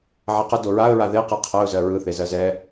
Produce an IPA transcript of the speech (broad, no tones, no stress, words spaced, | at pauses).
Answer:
ʕɛqə doɹaə̯ ɹaðeqɯ qʰɜʊ̯zɜ ɹɯθe zɜzɛ